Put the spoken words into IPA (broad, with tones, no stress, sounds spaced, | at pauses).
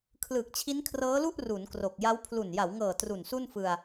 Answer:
kʰ l ɯː˨˩ k̚ t͡ɕʰ i˦˥ n kʰ r ɤː˦˥ l u˥˩ ʔ r u˩˦ n k r o˨˩ k̚ j a˦˥ w pʰ l u˨˩ n j a˩˦ w ŋ ɤː˨˩ t r u˨˩ n s u˥˩ n f ɯ˧ a̯